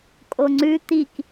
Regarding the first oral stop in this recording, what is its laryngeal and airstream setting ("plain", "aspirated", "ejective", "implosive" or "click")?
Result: ejective